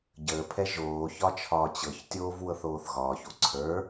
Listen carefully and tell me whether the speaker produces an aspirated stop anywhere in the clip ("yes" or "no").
yes